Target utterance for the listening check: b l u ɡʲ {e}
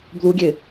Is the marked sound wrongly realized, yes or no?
no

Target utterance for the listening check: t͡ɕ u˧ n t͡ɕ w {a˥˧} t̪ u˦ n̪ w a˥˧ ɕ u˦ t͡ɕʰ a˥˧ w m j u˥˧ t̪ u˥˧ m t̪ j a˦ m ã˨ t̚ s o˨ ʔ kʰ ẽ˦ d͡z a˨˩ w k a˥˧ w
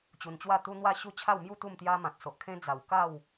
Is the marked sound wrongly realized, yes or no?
no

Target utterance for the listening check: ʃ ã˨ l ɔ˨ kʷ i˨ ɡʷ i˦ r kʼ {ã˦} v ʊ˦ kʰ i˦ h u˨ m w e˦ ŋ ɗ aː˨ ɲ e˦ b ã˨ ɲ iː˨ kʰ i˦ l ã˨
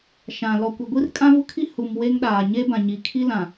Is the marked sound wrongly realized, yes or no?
no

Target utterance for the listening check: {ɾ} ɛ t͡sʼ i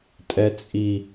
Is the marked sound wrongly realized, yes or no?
yes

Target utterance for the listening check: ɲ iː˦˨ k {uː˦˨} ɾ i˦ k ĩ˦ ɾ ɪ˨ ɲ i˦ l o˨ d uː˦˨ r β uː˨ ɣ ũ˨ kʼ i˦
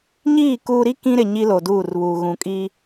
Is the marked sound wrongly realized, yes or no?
yes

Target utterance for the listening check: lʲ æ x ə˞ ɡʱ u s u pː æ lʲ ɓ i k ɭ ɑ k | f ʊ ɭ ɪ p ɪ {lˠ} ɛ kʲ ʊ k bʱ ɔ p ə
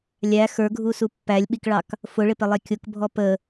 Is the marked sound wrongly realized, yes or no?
no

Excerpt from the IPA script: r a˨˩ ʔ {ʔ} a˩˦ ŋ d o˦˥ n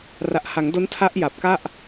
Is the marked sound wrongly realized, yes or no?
yes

